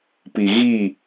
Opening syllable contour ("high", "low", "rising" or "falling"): low